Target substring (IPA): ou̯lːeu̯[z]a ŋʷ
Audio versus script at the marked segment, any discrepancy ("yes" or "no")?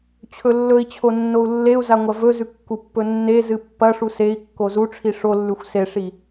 no